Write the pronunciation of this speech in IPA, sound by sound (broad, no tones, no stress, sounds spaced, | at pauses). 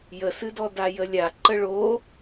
j ə s ɨ d ɔ d a j ə lʲ a ǃ ə ɭ o